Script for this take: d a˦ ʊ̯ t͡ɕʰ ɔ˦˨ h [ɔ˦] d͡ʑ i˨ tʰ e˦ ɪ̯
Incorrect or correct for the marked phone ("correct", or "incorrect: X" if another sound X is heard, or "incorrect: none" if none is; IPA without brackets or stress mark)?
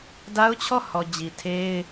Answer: incorrect: ɔ˨